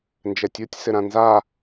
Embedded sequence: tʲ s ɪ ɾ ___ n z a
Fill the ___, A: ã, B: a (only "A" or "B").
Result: A